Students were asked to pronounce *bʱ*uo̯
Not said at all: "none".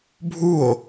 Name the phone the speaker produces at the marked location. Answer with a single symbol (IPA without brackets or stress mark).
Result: bʱ